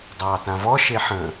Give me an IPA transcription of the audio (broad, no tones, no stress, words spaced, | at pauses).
dˤɑːtãvɔ ʃeħə̃